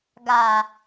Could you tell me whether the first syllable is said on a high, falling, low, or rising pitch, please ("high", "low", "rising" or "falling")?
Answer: low